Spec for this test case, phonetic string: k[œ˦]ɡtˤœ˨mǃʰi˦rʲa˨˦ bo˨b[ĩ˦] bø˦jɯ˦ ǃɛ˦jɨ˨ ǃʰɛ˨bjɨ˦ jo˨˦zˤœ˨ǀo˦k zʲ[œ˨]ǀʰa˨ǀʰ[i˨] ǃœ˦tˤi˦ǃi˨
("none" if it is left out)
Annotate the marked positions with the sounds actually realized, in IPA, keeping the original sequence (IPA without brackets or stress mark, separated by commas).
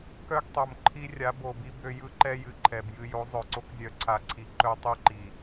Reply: œ˦, i˦, œ˨, i˨